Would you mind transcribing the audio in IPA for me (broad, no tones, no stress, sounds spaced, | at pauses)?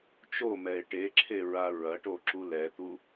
t͡ʃ o m ɛ e̯ ʈ e ǁʰ e ɹ a ɹ ɐ ʈ o ǁ u l ɛ t̪ u